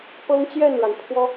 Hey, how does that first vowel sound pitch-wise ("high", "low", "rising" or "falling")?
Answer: high